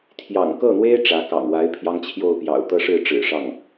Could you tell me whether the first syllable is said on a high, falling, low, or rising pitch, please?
low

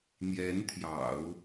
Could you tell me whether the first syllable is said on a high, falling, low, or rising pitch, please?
rising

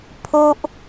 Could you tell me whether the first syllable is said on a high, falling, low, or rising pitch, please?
high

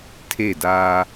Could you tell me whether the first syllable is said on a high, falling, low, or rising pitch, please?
falling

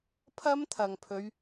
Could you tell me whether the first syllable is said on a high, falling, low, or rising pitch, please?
high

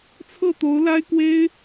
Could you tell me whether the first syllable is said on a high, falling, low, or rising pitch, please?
falling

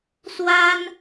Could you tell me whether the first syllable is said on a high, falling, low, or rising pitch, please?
high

